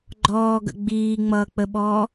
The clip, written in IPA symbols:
ɡ͡ǃ ɔː ɡ ə̰ ɡ͡b iː ŋ͡m ʌː k͡p ə ɓ ɔː

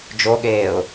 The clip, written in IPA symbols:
d͡ʒ o ɠ eː ʊ̯

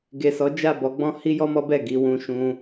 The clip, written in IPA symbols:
ɡ e˨ s ɔ˨˦ d͡ʒ a˦˨ b ɔ˧ ɡ͡b ɔ̃˦ h i˦ j ɔ˦ m ɔ˦ b ɛ˦˨ ɡ i˧ w ũ˧ ʃ ũ˧

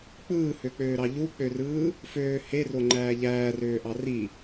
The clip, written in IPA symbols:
k͡p ɯː h ø k͡p øː ɾ ɑ ʎ u k͡p ø r ɯː | f øː h e r o ŋ͡ǃ æː ʎ æː r øː ʔ ɑ r i

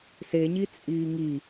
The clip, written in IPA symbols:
s e ɲ i t͡sʼ iː ŋ i

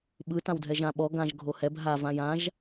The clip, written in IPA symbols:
ɓ ɯ t ã w dʱ ɛ ʒ ã ɓ ɔ ɡ ã ʒ ɡʱ o h ɛ b ɦ a v ã j ã ʒ

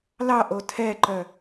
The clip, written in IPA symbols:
l ɑ ʔ o tʰ ɛ ǃ œ

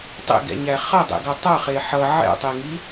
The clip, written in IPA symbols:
tˤ ḛ ɡ ɛ̰ ɲ æ χ ʌ dˤ ḛ ɡ ʌ tˤ ʌ χ e ħ ʌ ʕ ɛ̰ tˤ e ŋ i

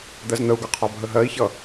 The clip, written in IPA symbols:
d̪ ɜ z n̪ ə u̯ ɡ ʌ qʰ ɒ bʱ ə ɦ ɜ i̯ ç ʌ

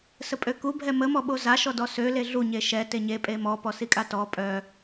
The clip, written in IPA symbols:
s ə pʼ ø k u bʱ ɛ m ə m ɔ ɓ o z a ʃ ɔ d ɔ s ø l e ɮ u ɲ e ʃ ɛ t e ɲ e pʼ e m ɔ p ɔ s i kʼ a t ɔ pʼ œ

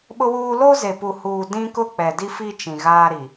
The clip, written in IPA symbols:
ɓ ʊ˦ w uː˦ l o˦ z e˨ p u˨ h uː˨ d ĩ˦ k ʊ˦ k͡p ɛ˨ d i˦ f i˦ t͡ʃ ĩ˨ ɣ aː˦ ɾ i˨

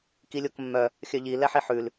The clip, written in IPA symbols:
k i lʲ o k mː œ | xʲ œ ʎ i l ɛ ħ i ħ ʉ l

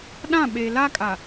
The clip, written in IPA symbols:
ɗ ã˦˨ ɓ e˨ l a˦ kʼ a˨

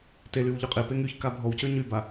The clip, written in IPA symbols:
t e l y w ʎ ø qʼ e p e ŋ y ç k a bʱ ɔ w c ø ɲ y b a

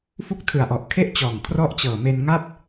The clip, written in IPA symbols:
f u˦˥ k̚ tʰ ɯ˨˩ a̯ ʔ ɔ˨˩ ʔ kʰ e˥˩ ʔ t͡ɕ ɔː˨˩ ŋ kʰ r ɔ˦˥ ʔ t͡ɕ ɤː˨˩ m e˧ n ŋ a˥˩ p̚

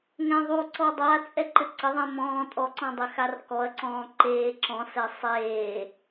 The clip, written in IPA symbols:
ŋ ɛ̃ ðˤ u ǀ ɔ dˤ a t͡sʼ ɛ ǃ ɘ ǀ ɐ ðˤ ẽ m ɔ̃ː tʼ ɔ ǀ ɔ̃ dˤ ɘ x a r k ɔ ɐ̯ ǀ ɔ̃ː ǃ eː ǁ ɔ̃ s ɛ sˤ eː

